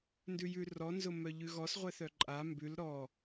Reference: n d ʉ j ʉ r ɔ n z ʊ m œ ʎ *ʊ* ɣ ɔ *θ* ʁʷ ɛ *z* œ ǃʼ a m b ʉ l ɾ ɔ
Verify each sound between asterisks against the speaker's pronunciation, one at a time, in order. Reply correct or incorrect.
incorrect, incorrect, incorrect

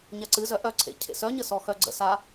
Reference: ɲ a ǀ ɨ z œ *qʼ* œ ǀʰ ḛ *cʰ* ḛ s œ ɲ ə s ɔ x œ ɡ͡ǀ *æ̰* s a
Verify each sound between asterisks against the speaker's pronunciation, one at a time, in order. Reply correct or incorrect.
incorrect, correct, incorrect

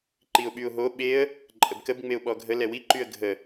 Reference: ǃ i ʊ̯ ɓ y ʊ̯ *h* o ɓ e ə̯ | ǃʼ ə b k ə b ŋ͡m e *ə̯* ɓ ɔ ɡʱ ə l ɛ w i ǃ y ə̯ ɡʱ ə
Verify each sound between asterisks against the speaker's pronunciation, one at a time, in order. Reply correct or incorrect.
incorrect, incorrect

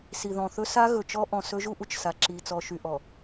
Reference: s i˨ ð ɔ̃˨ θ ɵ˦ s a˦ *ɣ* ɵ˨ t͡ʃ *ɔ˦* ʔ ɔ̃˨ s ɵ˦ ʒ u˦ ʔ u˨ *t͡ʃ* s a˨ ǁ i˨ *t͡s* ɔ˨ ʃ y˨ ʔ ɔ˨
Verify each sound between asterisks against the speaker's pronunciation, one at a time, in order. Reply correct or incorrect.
correct, correct, correct, correct

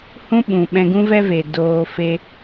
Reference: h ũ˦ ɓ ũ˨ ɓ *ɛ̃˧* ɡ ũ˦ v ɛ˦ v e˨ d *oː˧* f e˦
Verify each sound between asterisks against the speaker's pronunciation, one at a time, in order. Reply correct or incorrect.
correct, correct

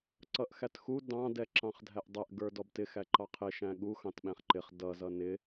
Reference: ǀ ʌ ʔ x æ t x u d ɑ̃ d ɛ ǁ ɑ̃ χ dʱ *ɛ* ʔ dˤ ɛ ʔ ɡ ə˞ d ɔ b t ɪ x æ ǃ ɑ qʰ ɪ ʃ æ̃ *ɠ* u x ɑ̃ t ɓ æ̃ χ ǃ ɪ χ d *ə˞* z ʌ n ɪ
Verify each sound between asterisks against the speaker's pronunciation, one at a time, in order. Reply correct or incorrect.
incorrect, correct, incorrect

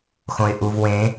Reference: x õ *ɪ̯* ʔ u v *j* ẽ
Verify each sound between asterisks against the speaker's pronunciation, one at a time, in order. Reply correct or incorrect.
correct, incorrect

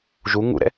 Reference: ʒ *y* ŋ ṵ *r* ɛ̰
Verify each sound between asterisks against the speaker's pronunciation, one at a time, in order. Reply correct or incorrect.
incorrect, incorrect

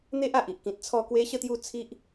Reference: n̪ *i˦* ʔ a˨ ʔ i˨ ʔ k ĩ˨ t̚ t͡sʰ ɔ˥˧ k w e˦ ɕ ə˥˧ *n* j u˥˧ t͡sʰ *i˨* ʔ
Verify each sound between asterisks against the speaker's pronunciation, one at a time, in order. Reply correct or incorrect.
incorrect, incorrect, incorrect

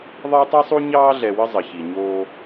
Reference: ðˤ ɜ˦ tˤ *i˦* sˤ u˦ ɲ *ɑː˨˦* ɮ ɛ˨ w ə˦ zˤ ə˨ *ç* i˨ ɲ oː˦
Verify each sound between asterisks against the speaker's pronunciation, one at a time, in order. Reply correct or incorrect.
correct, incorrect, correct

